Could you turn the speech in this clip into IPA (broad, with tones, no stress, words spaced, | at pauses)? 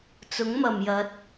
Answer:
t͡sʊ˨˥ŋmɐ˨˩mjɐ˨˥t̚